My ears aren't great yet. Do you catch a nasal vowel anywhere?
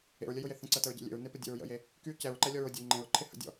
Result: yes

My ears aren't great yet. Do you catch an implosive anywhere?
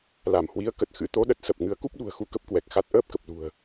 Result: yes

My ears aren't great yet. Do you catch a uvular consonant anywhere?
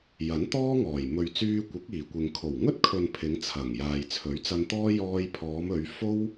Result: no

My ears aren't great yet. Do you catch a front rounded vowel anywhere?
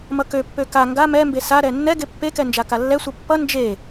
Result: yes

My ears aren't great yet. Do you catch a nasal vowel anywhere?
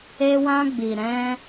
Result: yes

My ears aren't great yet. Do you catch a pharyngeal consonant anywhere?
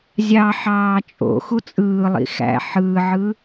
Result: yes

